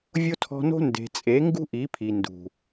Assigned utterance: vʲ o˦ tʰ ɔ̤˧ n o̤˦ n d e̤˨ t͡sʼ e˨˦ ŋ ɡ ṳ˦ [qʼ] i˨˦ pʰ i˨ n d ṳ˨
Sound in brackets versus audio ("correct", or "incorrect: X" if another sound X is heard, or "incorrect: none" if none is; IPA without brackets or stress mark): incorrect: ʔ